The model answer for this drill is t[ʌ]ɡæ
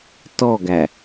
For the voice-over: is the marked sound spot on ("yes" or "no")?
no